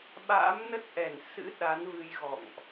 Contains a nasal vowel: no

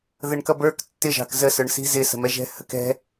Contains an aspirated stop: no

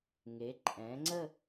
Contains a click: yes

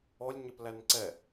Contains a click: yes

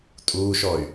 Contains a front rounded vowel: yes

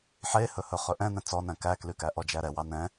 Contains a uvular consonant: yes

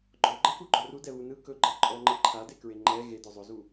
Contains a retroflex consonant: no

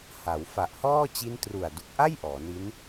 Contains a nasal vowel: no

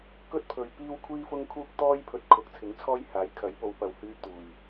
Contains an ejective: no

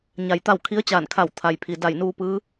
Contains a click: no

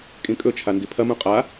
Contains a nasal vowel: yes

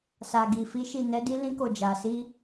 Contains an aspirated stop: no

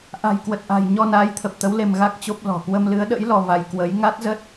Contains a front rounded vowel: no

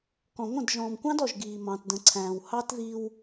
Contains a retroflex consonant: no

